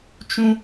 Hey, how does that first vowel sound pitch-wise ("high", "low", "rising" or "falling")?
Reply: high